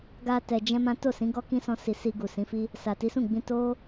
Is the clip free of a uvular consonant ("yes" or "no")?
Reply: yes